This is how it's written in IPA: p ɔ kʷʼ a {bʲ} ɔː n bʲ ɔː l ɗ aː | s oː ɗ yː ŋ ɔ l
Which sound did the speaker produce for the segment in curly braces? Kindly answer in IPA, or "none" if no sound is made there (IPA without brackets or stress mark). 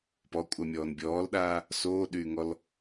mʲ